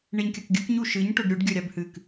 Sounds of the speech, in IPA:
ɳeɲkʲɐkɡʲɵkɲu ʃɨɲ ʈɵɖɾʲuɖ ɡʲɵɾʲabhɨk

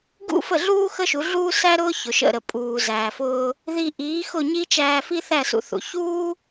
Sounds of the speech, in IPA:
ɡṵ˥fə˥˩ɮuː˥ xə˥ʃu˩˥ ɮuː˥sæ˥ ɾʊː˥çʊ˩ʃə̰˥˩ɾə˩ pʼuː˩zæː˩fʊː˧ | ði˧ʔiː˩˥ xʊ˥˩ɲi˥t͡ʃæː˧ fi˥θæ˥˩sṵ˧θṵ˩ çuː˥

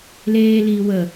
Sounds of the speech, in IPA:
leːliː wə

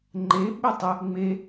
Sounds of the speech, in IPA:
ŋ͡ǃeɓe tˤə | ŋ͡me

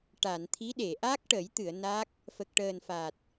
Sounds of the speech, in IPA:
ʈa˨˩˨nt̪ʰi˧˥ɗe˨˩˨ ʔaː˦˥k̚ʈə˨˩˦j t̪ɨ˨˩˨ə̯ na˦˥k̚ | fə˨˩k̚ʈəː˨˩nfa˨˩t̚

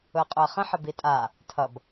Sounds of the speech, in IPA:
ʊə̯qʼʊə̯χə̃ ħəbitʼa | tʰʌb

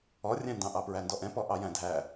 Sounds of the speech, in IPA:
ɔrʲæ̃ndɑ̃ ʔɑpɹændɔʔɛ̃ pɔʔɑjæ̃dʱæ

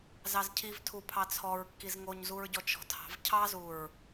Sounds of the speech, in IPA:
zɑzcʰiv tʰupʰɑt͡sʰɔɹ kːizŋoɲzuɹɟɔ t͡ʃɔ̤tʰɑ̤v cʰɑzuɹ

